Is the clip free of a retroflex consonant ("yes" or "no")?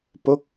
yes